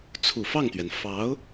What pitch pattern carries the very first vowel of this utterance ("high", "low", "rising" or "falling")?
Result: low